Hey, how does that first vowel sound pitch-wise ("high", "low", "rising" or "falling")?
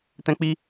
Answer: high